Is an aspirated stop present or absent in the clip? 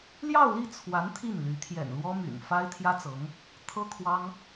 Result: present